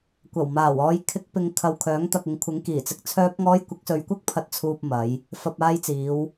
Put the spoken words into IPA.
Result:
kʷɐ˨˩wmaː˨˩wɔː˨˧j kʰɪ˧k̚pɪ˨ŋ kʰɐ˨wkʰœː˨˥ŋt̪ɐ˨k̚ ɪ˨ŋkʷʰɪ˨˥ŋkiː˨˩t͡sɪ˨k̚ t͡sʰœː˧p̚ŋɔː˧j kʷɪ˨˥k̚sɵ˨˧ɥkʷɐ˥k̚ pʰɐ˨t̚t͡sʰuː˨p̚ mɐ˨˧j | fɐ˨p̚ aː˧jt͡siː˨˧w

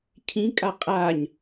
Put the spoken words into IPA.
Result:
cʰĩkʼa qʼaɲ

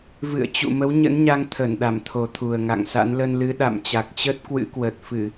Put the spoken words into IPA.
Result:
vɨ̰˧˨ə̯t͡ɕṵ˧˨ mə˨˦wɲə̰˧˥nɲa˧ŋ t̪ʰə˧˩nɗa˧˩mt̪ʰo˨˩t̪ʰu˨˩ə̯ ŋa̰˧˨ŋsa̰˧˥n lə˧nlɨ˨˦ ɗa̰˧˨mt͡ɕa˨˩k̚t͡ɕə˦˥t̚ kwɨ̰˧˥kwə˨˩t̚fɨ˧˩˨

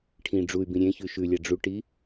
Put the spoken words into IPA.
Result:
ʈʰĩ ɖ͡ʐuy̯bĩ ɾʲẽçʉ ʃʉlʲa ɖ͡ʐuʈi

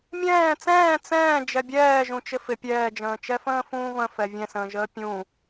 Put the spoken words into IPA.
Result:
mʲɛ̃ː t͡sɛ̃ː t͡sɛ̃ː d͡ʒɛbʲɛː ʒũt͡ʃɪfɪ pʲɛːd͡ʒə̃ːt͡ʃɛfə̃ː fũːvə̃fɛ vʲɛ̃sə̃ːʒəː pʲũ

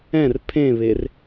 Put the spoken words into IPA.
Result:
ɛ̃r pʰẽβer

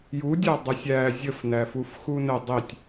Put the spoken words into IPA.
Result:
judʲæ dˤəsʲæ zʲəfnæfuf xunə dˤitʲ

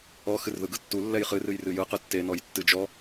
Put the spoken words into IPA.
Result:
ɔ xɨrðɯɡɯtːu lːɛjχɨrɨj rɨjɯ qɯtːenɔj tːɨd͡ʒɔ

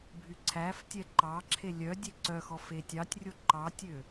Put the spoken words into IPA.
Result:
bʱyǀʰæftʲɛ ǃɑǁʰe lʲœ dʲeǀœxɔ fetʲɑtʲrʲo ǃɑtʲø

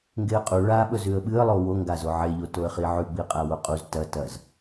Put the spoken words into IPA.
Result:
ŋɡeə̯qʼu ɭaɓɵz ʉə̯ɓɨə̯lˠo woŋɡazo ʕeʎo toə̯χiʕʉɡ͡biə̯ qʼawoqʼuz tɐ tɐz

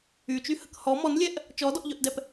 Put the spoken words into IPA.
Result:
yt͡ʃyhək hɔ mɔnlʲɛʔ | t͡ʃɔdɔʔʎœʔdɛp

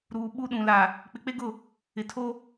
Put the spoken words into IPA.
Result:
ɾuː˨ ɓu˦ɗũ˨ la˨ | k͡pɪ˨k͡pe˦ɡʊ˦˨ | ɪ˨tʰo˦

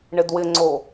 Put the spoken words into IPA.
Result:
ɳɪdwɪŋ͡ǀo

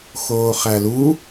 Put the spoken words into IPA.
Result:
xoːχælu

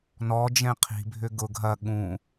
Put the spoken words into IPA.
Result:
nɔ d͡ʒɛ̃qʰi̤bʱʏ ɡʊ ɡʱɐ ɠũ

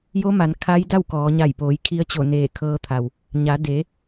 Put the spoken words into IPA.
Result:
jo˧˥ma˩˧n kʰa˧˥jda˥˨wkɔː˩˧ ɲa˧˩jpoː˩˧jkʰi˧ə̯ t͡ɕo˧˩neː˧˩ kʰɤː˧t̪ʰa˩w | ɲa˩˧de˩˧

